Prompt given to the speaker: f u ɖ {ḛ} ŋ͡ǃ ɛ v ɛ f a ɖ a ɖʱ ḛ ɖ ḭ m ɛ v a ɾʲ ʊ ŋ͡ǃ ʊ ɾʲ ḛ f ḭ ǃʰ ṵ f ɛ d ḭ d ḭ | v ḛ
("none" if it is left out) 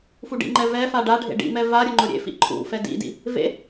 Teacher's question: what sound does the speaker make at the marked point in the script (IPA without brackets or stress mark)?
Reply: ḭ